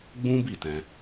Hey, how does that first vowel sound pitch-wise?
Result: high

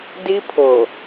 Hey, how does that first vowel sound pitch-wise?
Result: high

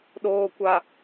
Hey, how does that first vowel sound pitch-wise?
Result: low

